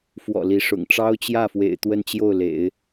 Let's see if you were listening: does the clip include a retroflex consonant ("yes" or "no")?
yes